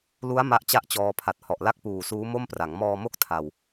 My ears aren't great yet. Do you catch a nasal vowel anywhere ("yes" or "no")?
no